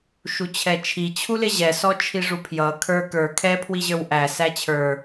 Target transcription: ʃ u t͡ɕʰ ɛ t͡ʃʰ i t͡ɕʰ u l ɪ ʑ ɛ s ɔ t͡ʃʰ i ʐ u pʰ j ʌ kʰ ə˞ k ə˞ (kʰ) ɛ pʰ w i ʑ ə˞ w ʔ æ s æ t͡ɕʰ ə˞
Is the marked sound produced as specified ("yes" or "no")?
yes